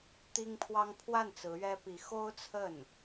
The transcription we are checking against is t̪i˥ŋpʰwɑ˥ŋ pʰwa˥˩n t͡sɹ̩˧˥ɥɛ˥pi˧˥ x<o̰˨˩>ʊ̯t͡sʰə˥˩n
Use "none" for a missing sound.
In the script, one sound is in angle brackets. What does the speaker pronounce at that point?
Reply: o˥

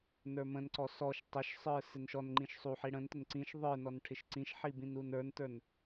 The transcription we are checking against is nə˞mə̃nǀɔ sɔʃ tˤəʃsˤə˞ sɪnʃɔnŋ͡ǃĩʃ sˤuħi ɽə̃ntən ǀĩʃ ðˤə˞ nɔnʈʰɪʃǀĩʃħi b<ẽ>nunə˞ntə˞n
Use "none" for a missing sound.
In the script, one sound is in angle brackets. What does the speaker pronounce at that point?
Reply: ĩ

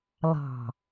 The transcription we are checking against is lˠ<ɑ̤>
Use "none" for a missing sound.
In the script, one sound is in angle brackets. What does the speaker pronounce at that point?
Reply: ɑ̤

